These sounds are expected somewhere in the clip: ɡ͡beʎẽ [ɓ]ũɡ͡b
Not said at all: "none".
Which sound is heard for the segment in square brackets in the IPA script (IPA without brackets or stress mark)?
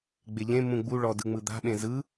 m